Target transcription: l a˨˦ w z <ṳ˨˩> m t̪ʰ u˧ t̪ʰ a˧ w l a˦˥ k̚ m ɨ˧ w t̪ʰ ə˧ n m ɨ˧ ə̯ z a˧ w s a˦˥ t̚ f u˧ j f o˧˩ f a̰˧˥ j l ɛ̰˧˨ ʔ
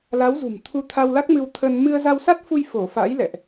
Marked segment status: correct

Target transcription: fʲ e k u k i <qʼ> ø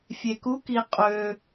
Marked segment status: correct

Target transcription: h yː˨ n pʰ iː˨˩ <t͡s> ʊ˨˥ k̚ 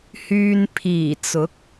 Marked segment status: correct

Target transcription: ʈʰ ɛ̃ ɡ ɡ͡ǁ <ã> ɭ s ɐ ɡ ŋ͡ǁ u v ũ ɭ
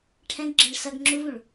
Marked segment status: incorrect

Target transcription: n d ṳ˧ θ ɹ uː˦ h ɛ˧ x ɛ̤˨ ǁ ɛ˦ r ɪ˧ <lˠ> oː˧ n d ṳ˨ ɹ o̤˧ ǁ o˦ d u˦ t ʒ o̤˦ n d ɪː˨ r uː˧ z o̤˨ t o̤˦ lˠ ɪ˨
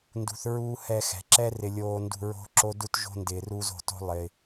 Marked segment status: incorrect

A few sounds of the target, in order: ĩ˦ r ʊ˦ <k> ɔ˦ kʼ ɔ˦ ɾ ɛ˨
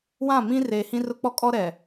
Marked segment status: incorrect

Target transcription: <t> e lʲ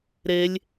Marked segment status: incorrect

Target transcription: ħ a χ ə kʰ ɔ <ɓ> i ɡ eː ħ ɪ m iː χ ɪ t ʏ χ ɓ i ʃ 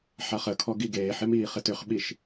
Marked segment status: incorrect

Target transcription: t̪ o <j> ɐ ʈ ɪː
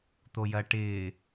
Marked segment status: correct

